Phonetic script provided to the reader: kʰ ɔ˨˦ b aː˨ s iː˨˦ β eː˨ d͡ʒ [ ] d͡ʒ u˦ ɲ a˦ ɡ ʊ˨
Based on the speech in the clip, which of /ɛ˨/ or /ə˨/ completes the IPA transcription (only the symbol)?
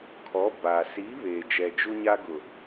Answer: ɛ˨